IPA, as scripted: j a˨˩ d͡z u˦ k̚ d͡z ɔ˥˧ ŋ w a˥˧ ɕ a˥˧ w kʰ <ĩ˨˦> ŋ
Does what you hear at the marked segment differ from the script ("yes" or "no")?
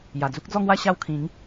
no